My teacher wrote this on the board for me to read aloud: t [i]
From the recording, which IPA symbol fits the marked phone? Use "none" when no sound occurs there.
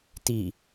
i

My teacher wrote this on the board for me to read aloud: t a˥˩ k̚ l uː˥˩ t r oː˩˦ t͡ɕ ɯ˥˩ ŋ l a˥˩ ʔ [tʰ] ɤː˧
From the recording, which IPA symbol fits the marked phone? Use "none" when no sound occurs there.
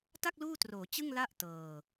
t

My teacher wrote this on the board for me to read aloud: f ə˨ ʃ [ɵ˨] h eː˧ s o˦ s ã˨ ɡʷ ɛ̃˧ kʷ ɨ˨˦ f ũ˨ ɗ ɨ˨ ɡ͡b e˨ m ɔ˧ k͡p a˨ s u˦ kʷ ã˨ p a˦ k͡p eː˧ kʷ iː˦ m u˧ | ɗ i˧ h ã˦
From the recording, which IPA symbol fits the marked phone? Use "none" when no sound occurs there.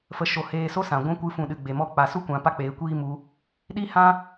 o˨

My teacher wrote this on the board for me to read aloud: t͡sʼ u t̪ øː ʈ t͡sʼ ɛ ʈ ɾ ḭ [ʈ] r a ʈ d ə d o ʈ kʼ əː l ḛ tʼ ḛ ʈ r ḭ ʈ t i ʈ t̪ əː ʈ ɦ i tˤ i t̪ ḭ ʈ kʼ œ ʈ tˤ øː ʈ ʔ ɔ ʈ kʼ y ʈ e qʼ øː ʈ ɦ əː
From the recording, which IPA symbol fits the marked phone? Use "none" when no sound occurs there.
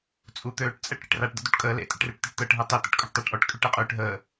ʈ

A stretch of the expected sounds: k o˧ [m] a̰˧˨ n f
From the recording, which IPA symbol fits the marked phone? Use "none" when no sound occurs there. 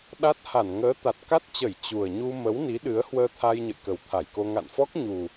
ŋ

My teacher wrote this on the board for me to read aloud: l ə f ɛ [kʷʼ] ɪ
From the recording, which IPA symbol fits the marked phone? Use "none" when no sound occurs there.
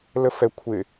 kʷʰ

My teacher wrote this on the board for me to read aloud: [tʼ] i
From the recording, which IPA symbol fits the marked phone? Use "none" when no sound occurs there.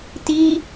t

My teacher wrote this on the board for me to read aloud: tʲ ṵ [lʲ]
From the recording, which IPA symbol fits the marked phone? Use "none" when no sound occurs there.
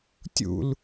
l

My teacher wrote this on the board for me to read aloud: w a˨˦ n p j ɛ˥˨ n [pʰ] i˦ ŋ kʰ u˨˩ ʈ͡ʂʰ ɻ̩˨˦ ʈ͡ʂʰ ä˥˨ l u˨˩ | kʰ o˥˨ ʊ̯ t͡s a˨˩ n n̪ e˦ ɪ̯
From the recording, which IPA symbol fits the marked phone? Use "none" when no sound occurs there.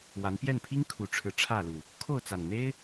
pʰ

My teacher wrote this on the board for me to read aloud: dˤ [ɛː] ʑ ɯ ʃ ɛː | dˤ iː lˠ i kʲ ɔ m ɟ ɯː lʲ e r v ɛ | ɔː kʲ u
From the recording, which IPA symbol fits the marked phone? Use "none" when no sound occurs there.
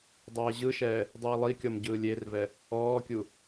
ɛː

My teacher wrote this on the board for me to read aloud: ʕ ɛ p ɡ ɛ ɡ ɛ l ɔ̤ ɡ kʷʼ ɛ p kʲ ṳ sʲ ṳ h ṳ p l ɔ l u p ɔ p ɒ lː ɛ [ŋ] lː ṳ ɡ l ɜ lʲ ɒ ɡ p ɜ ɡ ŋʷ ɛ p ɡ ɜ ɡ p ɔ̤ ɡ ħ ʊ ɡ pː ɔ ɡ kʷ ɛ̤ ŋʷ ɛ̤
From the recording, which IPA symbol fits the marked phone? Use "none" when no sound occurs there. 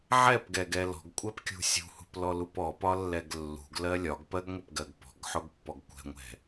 ɡ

